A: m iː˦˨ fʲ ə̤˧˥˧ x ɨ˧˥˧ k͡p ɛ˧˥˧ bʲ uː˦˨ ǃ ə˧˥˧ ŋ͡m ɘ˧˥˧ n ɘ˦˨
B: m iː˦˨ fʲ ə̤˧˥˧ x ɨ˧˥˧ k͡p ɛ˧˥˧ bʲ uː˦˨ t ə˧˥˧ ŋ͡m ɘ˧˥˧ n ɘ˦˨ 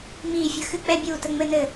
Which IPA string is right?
B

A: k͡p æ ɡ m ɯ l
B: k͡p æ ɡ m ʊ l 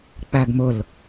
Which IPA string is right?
B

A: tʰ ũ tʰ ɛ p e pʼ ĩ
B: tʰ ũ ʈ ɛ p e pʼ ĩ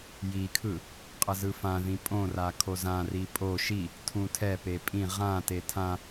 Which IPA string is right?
A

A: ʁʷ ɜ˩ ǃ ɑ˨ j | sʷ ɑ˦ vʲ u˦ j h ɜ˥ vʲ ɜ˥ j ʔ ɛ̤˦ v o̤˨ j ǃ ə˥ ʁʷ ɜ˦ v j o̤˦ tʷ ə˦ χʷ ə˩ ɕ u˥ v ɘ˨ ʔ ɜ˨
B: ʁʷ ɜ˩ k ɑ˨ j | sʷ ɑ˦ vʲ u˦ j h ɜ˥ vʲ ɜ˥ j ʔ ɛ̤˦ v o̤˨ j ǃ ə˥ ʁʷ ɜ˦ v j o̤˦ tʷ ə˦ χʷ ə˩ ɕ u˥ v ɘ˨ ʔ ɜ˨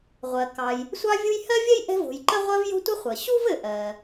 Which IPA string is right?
B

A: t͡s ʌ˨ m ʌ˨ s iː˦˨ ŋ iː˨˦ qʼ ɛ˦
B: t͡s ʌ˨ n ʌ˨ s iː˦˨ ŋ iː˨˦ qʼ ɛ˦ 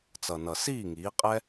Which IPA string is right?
B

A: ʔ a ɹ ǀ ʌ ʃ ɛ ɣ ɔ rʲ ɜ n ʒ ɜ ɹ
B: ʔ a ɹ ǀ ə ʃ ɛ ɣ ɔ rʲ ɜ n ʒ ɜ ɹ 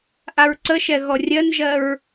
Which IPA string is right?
B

